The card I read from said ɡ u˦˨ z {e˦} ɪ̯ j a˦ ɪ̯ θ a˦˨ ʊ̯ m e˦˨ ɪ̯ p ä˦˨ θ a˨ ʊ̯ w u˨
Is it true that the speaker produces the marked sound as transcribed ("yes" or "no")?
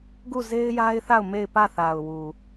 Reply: yes